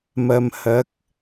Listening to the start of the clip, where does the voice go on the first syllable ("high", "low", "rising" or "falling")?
low